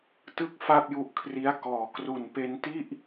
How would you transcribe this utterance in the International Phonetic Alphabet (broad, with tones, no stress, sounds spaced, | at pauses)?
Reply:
t ɯ˥˩ k̚ f a˥˩ p̚ j u˦˥ ʔ kʰ r i˦˥ a̯ k ɔː˩˦ k r u˨˩ n p e˧ n t i˥˩ ʔ